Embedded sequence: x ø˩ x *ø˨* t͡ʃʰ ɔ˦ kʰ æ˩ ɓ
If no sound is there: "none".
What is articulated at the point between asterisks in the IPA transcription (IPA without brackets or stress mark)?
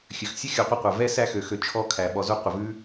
ø˨